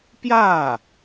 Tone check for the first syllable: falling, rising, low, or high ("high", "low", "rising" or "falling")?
falling